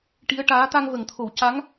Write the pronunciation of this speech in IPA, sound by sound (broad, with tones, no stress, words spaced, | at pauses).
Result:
ʈi˧˥ə̯ ʈaː˧˥ t̪a˧ŋvə˨˩˨ŋt̪ʰo˨˩˨w ca˧˥ŋ